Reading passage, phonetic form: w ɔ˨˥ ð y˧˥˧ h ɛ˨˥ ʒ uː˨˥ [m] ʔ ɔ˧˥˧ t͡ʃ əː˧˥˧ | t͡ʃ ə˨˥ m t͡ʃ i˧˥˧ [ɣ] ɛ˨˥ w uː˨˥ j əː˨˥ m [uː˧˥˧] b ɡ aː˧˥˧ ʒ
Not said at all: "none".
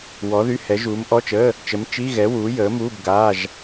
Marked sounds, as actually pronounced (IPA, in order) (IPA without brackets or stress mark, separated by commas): m, ɣ, uː˧˥˧